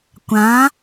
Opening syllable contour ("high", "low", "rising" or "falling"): rising